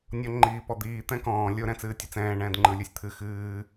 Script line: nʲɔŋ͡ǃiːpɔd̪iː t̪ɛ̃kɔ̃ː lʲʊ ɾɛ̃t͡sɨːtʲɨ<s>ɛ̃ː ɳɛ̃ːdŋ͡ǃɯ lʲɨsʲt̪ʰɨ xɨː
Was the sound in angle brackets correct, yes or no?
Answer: no